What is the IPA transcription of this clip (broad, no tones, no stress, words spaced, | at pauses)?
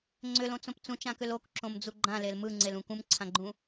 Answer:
ŋ͡ǀʏlõt͡sõp t͡sũt͡ʃãkʏl okǁõmd͡zu ɡ͡ǃãlel mɯŋ͡ǀelũ kũmǀʰãɡ͡ǃũ